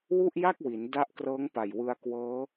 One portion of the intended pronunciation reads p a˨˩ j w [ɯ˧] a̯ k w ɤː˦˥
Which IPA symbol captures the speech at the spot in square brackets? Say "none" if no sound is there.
ɯ˧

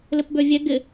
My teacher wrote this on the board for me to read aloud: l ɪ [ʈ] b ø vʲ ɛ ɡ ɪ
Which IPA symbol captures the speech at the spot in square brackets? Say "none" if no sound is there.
p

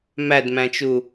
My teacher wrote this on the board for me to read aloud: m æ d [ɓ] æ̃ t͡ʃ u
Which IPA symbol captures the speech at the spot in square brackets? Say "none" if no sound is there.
m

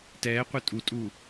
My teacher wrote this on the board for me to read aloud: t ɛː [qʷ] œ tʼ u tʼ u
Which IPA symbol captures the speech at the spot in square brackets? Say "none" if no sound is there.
qʷ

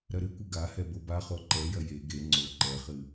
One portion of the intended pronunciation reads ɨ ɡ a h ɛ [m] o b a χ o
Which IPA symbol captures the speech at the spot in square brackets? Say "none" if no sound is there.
b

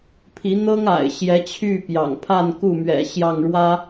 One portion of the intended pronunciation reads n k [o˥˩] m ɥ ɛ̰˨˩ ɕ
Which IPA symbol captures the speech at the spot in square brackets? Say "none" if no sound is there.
u˥˩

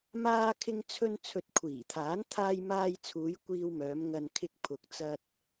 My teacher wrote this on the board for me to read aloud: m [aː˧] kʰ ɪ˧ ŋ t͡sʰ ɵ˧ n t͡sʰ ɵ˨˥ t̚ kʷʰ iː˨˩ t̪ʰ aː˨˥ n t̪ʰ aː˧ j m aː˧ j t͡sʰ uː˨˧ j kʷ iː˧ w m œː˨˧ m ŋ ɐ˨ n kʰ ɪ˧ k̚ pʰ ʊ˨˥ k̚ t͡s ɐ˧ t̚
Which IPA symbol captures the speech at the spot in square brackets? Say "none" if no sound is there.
aː˧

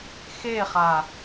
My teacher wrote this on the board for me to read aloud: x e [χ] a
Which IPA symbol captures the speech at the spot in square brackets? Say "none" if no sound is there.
χ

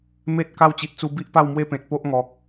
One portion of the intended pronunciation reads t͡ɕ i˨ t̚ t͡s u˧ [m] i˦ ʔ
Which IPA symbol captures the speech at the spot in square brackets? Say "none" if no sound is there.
b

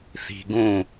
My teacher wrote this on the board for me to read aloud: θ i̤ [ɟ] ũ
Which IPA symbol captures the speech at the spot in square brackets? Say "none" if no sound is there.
ɡ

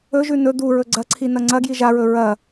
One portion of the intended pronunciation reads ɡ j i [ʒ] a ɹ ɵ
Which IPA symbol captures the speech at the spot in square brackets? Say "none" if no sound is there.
ʒ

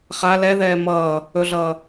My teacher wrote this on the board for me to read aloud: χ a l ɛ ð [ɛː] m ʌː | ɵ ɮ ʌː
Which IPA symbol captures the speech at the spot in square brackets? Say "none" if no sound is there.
ɛː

